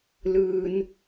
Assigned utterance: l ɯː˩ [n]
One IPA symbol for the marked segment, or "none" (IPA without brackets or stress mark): n